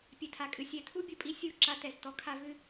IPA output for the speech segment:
pʲ ɛ˨ tʰ a˨ kʼ ɨ˨ sʲ ɛ˨ tʰ u˦ bʲ u˨ pʼ i˦ sʲ u˦˨ ǁ a˦ t ɛ˨ z t ɔ˦ kʰ a˦ v ɨ˦

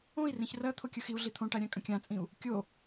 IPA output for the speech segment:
õ i̯ r ĩ ç r ɜ t̪ʰ o kʲ ɯ x i u̯ ɮ i t̪ʰ õ ʈ a ɾʲ ã kʼ ə̃ kʲ ã t͡sʼ ĩ u̯ | kʲ o

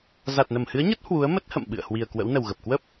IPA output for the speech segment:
z a˨˩ t̚ n ə˧˩ m h ɨ˨˦ ə̯ ɲ ə˦˥ t̚ h w u˨˦ ə̯ m ə˦˥ t̚ h ə̰˧˨ m ɓ ɨ̰˧˨ ə̯ h w i˨˩ ə̯ k w ə̰˧˥ w n ə˨˩ w ɣ ə˨˩ p̚ k w ə˦˥ p̚

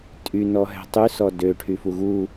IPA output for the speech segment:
tʼ y n ɔ ɦ ɛ̤ tˤ y s ɔ d ø ʈʰ y f u ɣ u

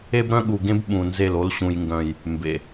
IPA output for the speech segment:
e˦ b ɾ œ̃˦ ɠ u˨ ɡ ẽ˦ b ɓ ũ˨ n z e˦˨ l o˦ l ɕ ũ˨ j ŋ ɡ œ̃˨ j | m b ḛ˨

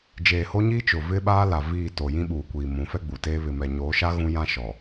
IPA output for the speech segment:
d͡ʒ eː˨ h o˦ ɲ iː˦ t͡ʃ ʊ˨ v ɪ˦ ɓ aː˦ l a˨ v iː˦˨ t o˨ j ĩ˦ ɓ uː˨ kʷ iː˨ m ũ˨˦ f ɛ˦ ɡ͡b u˨ t eː˦ β ɪ˨ m ɛ˨ ɲ oː˨˦ ʃ a˦ ɣ ũ˦ j ã˦ ʃ ɔ˨

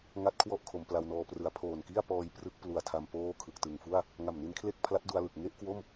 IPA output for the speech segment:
ŋ a˥˩ t̚ kʰ w ɔ˥˩ ʔ kʰ o˩˦ m p l a˧ w n ɔː˧ p r ɯ˨˩ a̯ pʰ oː˨˩ n k i˥˩ a̯ p ɔː˧ j p r ɯ˦˥ k̚ p l u˨˩ a̯ tʰ a˧ m p oː˥˩ kʰ ɯ˨˩ k̚ t ɯ˨˩ ŋ f u˥˩ a̯ | ŋ a˨˩ m n i˦˥ n kʰ l e˥˩ k̚ pʰ l a˦˥ t̚ d u˧ a̯ l ɯ˨˩ k̚ ŋ e˥˩ ʔ k w o˥˩ m

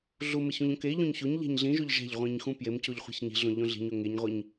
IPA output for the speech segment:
ɮ u m e ç ũ ʎ õ k e ʎ õ ɲ ç o ɲ ʎ æ̤ ɲ ɮ ĩ ʒ o ʎ ʒ æ̤ ʎ ʁʷ ĩ ɲ x ũ p j e m c o ʎ χʷ i̤ ç ɲ i̤ ɮ õ ʎ õ ɮ i̤ ɲ o ŋ e ɲ ʁʷ i ɲ

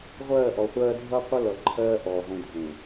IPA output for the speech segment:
ʁʷ ɜː˦˨ ʔ ɔ˨ χʷ ɜː˦ dʱ ʌ˦ qʷ ʌ˦ l ʌ˨ ǃʰ ɜː˦ ʔ ɔː˨ ʁʷ ĩ˨ dʱ ẽ˨

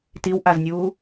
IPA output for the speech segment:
t i w ʔ a z nʲ uː

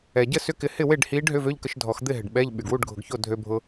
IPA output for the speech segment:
ɛ˩ ɟ ə˥˨ s ʏ˧˥˧ k ɪ˧ h ɪ˥˨ w e˥˨ ɖ h i˧˥ ɖ ɦ ʏ˧˥˧ v ø˧˥˧ ʎ k ə˧ ʃ dʱ ɔ˨˩˦ x d̪ ɪ˥˨ ɦ ɪ˩ ɖ ɓ ɛ˧˥˧ ʎ ɓ y˩ ɡ w u˥˨ ɖ ɡʱ ʊ˨˩˦ ɡ ç o˥˨ dʱ ø˧ bʱ ʊ˧

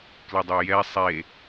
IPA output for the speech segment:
k l ɪ dˤ o j ɛ sˤ e

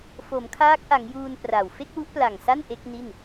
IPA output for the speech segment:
f o˩˦ m kʰ aː˦˥ k̚ ʔ a˩˦ ŋ j uː˧ n p r a˨˩ w f e˥˩ k̚ w u˦˥ ʔ p l a˨˩ ŋ s a˥˩ n ʔ e˦˥ k̚ n i˥˩ n

